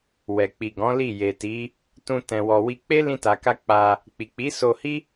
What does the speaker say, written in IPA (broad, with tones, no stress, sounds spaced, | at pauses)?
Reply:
w ɛ˨ k͡p i˨ ɡ ɔ̃˨˦ l i˦˨ j e˨ t i˨˦ | t ũ˧ t ɛ̃˨ w ɔ˨ w i˧ k͡p e˦ l ĩ˧ t a˨ k a˧ k͡p a˧ | k͡p i˨ k͡p i˨˦ s o˧ h i˦